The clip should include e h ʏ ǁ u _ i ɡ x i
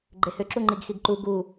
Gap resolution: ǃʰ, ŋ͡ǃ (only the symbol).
ŋ͡ǃ